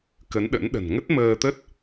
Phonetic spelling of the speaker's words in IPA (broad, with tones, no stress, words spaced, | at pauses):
kə˨˦nɗə̰˧˥n ɗə̤˨˩nŋə˦˥t̚məː˧t̪ə˦˥t̚